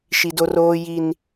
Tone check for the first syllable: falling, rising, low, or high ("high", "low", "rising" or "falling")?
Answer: high